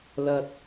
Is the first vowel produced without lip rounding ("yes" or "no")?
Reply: yes